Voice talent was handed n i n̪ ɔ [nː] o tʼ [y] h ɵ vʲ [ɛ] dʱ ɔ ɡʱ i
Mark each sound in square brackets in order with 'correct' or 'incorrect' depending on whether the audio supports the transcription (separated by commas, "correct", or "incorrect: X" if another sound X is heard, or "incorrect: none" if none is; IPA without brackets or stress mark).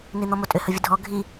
incorrect: m, incorrect: ʏ, incorrect: ə